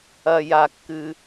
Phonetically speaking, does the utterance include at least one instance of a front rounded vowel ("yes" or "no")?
no